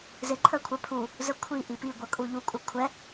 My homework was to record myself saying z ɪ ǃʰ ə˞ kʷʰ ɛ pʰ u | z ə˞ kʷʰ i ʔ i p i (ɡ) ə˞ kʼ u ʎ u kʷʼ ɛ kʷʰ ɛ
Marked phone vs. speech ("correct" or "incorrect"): incorrect